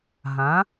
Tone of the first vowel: rising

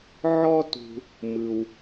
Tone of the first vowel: high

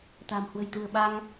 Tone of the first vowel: low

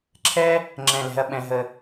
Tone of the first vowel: high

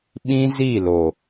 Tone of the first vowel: high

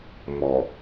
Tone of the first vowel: low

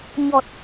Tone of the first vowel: low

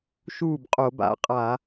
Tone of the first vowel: falling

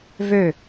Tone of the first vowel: falling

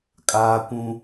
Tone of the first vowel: high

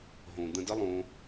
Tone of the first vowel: low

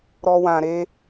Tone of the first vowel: high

